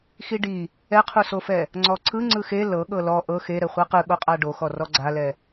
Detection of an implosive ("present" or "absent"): present